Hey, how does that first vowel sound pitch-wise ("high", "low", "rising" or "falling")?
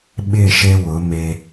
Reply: falling